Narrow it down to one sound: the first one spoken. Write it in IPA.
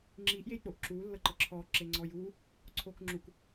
ŋ͡ǁ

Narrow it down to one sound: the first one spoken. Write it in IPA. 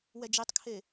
w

